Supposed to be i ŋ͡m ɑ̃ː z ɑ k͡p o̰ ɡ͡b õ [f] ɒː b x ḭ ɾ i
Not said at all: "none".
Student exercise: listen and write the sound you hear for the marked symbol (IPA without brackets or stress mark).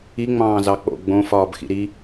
f